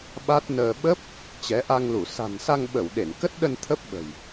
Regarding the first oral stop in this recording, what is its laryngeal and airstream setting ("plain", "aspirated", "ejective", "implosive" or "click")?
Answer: implosive